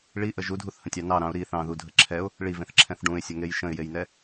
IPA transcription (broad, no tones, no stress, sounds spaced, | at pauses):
ɭ i ʔ ə ʒ u dʱ u θ h ə̃ tʲ ɑ n ɑ ɾ ɑ̃ ʊ̯ ɾ i θ ɑ̃ ð u dʱ ə ǁʰ ɛ ʊ̯ | ɭ i v ẽ θ ǁʰ ɛ̃ θ ɖ ũ ɪ̯ sʲ ə ŋ e j ʃ ə̃ ɪ̯ j e j n ɛ